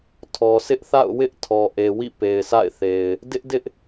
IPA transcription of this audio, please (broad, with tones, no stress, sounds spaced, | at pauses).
tʰ ɔ˨ sʰ ɪ˦ ʔ θ a̰˦˨ ʊ̯ w ɪ˦ ʔ tʰ ɔ˨ ʔ e˨ w ḭ˦˨ p e˨ ɪ̯ sʰ a̰˦˨ ɪ̯ θ e˨ ɪ̯ | d ɪ˦ ʔ d ɪ˦ ʔ